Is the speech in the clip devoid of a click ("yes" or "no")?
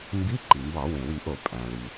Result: no